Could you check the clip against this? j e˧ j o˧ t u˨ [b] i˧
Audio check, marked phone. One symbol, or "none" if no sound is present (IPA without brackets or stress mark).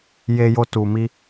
m